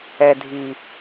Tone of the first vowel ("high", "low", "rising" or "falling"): low